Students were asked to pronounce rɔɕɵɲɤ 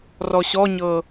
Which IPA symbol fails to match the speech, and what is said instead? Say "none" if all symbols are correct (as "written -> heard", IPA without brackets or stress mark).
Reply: ɵ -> ɔ